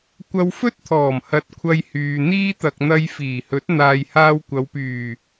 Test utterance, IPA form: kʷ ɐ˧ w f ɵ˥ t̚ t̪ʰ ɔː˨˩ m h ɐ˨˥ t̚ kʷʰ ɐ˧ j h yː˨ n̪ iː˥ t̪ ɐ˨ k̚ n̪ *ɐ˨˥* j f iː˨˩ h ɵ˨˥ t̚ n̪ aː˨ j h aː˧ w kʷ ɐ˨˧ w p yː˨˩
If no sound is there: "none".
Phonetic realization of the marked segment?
ɐ˧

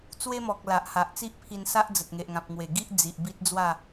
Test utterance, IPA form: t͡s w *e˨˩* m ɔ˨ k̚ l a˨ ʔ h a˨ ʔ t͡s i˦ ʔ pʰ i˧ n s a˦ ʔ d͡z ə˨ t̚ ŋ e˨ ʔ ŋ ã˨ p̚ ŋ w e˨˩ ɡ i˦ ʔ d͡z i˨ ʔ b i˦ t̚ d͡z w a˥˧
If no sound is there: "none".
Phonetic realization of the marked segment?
e˦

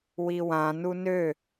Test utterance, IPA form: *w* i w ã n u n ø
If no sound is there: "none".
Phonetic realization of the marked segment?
w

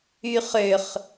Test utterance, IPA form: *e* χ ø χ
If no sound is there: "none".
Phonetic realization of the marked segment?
y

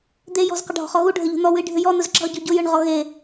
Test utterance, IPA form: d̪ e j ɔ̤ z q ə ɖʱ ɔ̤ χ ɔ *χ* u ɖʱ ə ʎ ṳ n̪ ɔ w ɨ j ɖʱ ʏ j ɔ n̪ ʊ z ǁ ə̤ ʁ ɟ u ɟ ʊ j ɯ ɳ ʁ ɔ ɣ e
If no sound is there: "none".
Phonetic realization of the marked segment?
ɣ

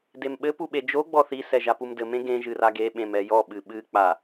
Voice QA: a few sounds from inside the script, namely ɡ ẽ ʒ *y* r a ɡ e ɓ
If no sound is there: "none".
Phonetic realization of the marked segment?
ɨ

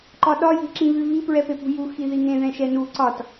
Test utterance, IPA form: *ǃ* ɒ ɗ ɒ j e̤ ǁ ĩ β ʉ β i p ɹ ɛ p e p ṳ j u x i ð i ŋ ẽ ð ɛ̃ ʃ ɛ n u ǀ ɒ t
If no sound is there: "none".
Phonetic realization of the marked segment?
ǃ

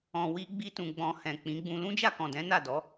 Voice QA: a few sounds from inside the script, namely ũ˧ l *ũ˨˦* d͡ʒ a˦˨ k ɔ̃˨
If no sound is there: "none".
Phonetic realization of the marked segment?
ũ˦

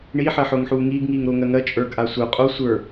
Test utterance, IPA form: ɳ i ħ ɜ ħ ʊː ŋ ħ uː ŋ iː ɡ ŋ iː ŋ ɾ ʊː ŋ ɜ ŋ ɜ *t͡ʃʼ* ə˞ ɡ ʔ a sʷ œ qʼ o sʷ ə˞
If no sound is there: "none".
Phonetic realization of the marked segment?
t͡ʃʼ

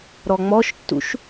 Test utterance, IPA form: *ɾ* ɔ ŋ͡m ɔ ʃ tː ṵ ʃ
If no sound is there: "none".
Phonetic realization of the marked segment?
ɾ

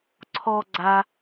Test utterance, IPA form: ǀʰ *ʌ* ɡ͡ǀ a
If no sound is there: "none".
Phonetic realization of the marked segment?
ɔ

